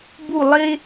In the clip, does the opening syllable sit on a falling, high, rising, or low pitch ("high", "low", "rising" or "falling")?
falling